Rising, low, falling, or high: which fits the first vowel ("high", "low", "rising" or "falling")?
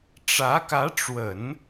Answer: rising